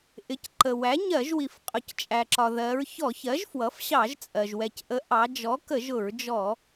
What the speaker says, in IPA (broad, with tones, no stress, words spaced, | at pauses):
ʔɪ˩˥c ǃə˩wæ˩˥ɲɜ˧˩˧ʒwi˩f qʼʊ˩˧ct͡ʃʼæ˩ǁɒ˩ ðɜ˩˧ɹ çɔ˧˩˧çɜ˩˥ʒ fwʌ˩˥fɕɑ˧˩˧ʒt͡sʼɜ˩ʒ wɛ˩cʔə˩˥ ʔɑ˩˧d͡ʒɔ˩˥ kə˧˩˧ʒ ʊ˧˩˧ɹd͡ʒɔ˧˩˧